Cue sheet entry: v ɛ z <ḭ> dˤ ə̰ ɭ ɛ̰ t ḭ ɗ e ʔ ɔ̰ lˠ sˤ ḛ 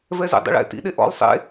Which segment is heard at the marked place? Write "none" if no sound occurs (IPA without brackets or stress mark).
ḛ